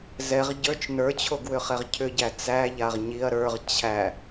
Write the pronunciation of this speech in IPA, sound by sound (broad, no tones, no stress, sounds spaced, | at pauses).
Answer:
z ɛ ʁ ɟ ə˞ t͡ʃ n ə˞ t͡ɕʰ o ɡ w ʏ χ ɛ ʁ cʰ ʏ ɟ æ t͡s æ ʎ a ʁ ɲ i ɐ̯ ɾ ə˞ ʁ t͡ɕʰ æ